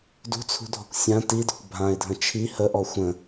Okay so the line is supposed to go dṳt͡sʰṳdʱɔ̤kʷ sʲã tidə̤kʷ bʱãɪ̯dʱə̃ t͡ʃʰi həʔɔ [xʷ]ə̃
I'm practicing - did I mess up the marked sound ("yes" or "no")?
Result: no